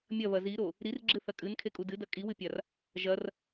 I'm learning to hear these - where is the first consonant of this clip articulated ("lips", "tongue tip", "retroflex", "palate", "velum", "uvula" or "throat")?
lips